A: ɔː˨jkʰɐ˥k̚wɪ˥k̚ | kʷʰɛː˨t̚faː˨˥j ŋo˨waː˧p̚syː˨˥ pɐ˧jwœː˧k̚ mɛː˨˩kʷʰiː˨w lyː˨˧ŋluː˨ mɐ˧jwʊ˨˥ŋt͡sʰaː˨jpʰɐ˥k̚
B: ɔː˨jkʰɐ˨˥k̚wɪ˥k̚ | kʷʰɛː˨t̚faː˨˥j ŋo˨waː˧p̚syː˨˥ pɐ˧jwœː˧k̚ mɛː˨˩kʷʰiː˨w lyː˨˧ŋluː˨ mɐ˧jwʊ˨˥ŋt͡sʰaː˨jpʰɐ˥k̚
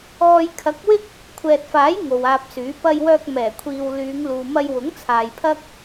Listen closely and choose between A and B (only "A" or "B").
B